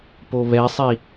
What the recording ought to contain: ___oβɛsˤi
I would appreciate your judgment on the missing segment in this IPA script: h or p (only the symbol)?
p